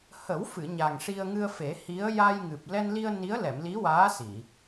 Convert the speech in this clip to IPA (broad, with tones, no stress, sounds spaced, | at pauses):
h ə˨˩˦ w f ɨ˨˩˨ ɲ a˨˩ ŋ ʂ i˧ ə̯ ŋ ɨ˧ ə̯ f e˨˩˦ h i˧˥ ə̯ j a˧ j ŋ ɨ˨˩ p̚ l ɛ˧ n l i˧ ə̯ n i˧˥ ə̯ l ɛ˨˩˨ m l i˧˥ w aː˧˥ s i˨˩˨